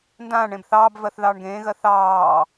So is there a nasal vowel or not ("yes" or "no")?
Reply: yes